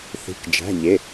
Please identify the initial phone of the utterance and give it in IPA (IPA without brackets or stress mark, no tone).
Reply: θ